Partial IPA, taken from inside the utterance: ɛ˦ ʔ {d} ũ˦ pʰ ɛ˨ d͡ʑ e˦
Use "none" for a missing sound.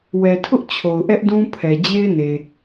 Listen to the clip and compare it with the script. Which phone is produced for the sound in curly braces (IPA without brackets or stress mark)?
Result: d